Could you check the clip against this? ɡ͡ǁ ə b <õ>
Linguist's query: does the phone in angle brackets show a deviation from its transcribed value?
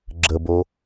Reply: yes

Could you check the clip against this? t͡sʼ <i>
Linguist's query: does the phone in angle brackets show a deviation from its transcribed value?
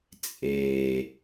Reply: yes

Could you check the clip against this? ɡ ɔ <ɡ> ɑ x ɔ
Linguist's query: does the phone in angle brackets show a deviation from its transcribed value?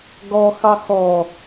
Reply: yes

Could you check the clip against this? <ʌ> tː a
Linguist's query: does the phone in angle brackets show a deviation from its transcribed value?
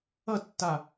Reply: no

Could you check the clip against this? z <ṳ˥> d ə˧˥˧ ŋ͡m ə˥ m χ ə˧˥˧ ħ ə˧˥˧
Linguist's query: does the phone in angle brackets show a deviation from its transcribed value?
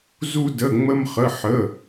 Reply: yes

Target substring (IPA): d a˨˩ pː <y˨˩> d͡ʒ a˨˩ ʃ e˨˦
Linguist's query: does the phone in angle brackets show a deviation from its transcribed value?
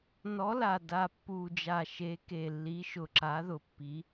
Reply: yes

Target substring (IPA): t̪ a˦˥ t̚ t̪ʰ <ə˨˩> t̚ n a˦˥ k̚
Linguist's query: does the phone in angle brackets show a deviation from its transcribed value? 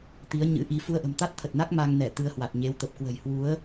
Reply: no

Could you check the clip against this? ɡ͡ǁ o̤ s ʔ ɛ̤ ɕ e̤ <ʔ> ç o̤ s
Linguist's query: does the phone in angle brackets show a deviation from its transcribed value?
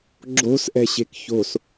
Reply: yes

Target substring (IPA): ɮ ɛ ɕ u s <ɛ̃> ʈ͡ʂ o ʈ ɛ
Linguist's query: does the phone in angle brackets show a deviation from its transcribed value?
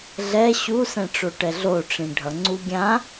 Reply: no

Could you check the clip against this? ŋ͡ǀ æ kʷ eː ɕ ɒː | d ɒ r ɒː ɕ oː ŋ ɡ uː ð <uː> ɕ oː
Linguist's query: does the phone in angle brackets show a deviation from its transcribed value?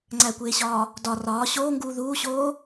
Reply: no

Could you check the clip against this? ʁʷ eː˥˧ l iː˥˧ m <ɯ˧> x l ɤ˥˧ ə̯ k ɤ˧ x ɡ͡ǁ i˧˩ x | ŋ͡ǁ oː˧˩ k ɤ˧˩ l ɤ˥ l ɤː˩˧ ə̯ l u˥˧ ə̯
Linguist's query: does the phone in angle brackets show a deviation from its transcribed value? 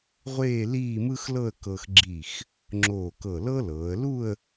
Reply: yes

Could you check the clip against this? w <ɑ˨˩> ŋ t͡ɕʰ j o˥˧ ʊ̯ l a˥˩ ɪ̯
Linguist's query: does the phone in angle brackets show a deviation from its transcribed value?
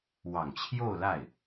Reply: no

